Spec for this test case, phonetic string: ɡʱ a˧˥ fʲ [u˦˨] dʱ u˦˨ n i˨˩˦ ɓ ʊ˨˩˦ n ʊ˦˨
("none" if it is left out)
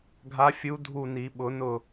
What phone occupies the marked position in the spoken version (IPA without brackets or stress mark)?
u˧˥